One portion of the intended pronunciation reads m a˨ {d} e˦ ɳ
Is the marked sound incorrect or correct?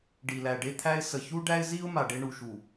incorrect